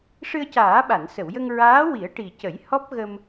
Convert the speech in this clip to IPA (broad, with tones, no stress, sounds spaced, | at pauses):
ʂ ɨ˧ ə̯ c aː˨˩˦ ɓ a˨˩˨ n s ə˨˩˨ w j ə˧ ŋ ɹ aː˧˥ w i˨˩˦ ə̯ ʈ i˨˩ c ə˨˩˦ j h ɔ˦˥ p̚ ɣ ə˧ m